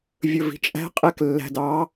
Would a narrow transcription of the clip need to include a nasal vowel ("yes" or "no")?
no